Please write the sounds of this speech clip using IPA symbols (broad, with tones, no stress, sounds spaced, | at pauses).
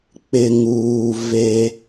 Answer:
k͡p ɪ˨ ŋ uː˨ v e˦